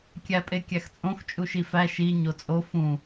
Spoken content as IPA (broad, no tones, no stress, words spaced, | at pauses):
kʲæpʼekʲæxt͡sʼõx t͡ʃʼuʃifæ ʃi ɲot͡sʼo fũ